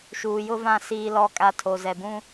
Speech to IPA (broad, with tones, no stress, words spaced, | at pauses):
ʃuː˨jʊ˦vã˦˨ siː˦lɔ˦˨kʼa˦ tʰo˨zɛ˨bũ˦